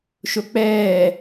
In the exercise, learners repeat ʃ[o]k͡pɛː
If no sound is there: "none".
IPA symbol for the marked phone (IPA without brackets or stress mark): o